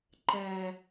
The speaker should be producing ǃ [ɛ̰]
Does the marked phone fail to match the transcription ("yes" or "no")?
yes